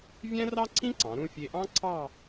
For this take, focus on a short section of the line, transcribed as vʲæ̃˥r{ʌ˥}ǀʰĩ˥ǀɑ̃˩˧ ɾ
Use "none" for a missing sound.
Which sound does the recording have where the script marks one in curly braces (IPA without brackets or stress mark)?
ɑ˥